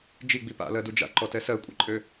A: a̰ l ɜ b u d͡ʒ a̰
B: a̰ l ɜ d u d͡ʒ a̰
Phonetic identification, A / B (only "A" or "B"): B